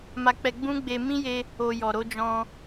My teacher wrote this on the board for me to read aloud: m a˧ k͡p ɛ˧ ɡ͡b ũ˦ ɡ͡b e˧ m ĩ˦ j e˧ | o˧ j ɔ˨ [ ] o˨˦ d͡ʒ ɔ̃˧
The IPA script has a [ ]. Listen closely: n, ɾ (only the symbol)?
ɾ